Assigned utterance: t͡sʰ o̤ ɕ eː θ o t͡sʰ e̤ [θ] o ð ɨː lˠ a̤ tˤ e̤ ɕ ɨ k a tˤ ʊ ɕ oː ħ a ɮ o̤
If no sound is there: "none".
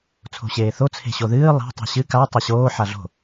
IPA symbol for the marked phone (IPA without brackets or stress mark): ɕ